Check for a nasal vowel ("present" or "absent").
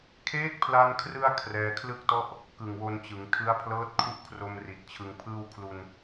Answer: absent